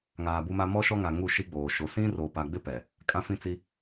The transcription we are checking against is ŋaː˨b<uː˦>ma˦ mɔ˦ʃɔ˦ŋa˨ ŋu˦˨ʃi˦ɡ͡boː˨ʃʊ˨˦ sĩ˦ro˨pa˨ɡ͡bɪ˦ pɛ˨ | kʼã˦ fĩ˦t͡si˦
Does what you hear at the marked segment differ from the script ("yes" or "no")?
yes